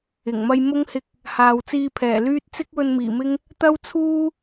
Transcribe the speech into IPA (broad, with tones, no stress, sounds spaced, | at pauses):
ɪ˨˩ ŋ m ɐ˧ j m ʊ˥ ŋ h ɪ˧ k̚ | h aː˨ w t͡s iː˧ pʰ ɛː˨˩ l yː˥ t̚ t͡s ɪ˥ k̚ w ɵ˧ n m iː˨˩ m ɪ˥ ŋ | t̪ ɐ˥ w t͡sʰ uː˥